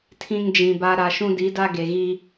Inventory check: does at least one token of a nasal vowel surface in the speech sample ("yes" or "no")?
yes